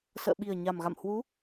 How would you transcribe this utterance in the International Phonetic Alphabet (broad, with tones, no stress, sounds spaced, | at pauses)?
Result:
s ə̰ː˧˨ ɓ i˨˩ ə̯ ɲ a˨˩ m ɣ a̰˧˨ m h w u˨˦